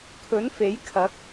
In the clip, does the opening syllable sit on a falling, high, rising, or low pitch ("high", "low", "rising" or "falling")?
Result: rising